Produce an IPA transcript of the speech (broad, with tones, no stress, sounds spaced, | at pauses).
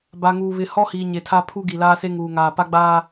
b a˨ ŋ uː˨ β ɪ˨ h ɔ˦ h iː˨ ɲ e˨ tʰ a˦ pʰ u˦ ɡ i˨ l aː˦ s e˦ ŋ uː˨ ŋ aː˨ p a˦ ɡ͡b aː˦